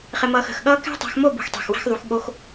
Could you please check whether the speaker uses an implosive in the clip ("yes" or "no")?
yes